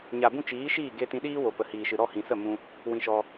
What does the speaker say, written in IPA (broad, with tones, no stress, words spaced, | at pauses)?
ɲa˨bũ˧ t͡ʃiː˨˦ʃiː˦˨ ɡe˧tĩ˧ɗiː˦wo˨ pə˨hiː˨ʃɨ˨ɾɔ˦˨ hĩ˨sə˦˨ mũ˧ | wĩ˧ʃɔ˧